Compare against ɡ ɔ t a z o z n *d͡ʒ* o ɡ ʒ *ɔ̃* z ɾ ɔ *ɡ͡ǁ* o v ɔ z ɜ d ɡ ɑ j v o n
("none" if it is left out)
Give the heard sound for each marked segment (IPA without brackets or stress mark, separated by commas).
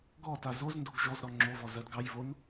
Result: d, ɔ, ŋ͡ǁ